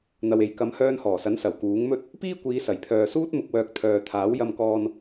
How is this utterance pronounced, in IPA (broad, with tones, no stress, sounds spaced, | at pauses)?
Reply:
n̪ ɐ˧ w e˨˧ j k ɐ˨˧ m h œː˧ n h ɔː˨˩ s ɐ˨˥ n s ɐ˨˩ w k uː˨˥ ŋ m ɵ˥ t̚ | p iː˥ kʷ iː˨˧ s ɐ˨˩ j pʰ œː˨ s uː˥ t̚ m ʊ˧ k̚ w œː˧ k̚ t̪ʰ œː˨ t̪ʰ aː˨˥ w j ɐ˧ m k ɔː˧ n